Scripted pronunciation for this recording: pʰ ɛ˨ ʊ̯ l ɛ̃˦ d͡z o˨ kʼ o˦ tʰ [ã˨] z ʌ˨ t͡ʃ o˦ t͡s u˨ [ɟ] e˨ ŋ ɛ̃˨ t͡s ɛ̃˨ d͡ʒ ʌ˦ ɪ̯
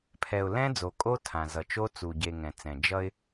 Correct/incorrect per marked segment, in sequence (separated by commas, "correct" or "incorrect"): correct, correct